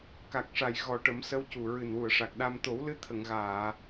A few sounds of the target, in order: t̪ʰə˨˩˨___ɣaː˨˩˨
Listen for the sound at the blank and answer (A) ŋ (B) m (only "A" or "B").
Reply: A